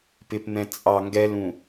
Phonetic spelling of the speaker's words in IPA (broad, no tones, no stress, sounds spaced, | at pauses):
p ɪ p n̪ ɛ̃ t͡sʼ ɑ ŋ ɡ ɛ l ũ